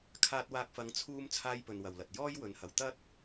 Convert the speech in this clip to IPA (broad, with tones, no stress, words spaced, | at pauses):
kʰaː˧t̚waː˧k̚fɐ˨˧ŋ t͡sʰuː˥m t͡sʰaː˥jpɵ˧nwɐ˨wlɐ˨t̚ jɔː˥j wɵ˨˧nhɐ˨˧w t̪ɐ˥t̚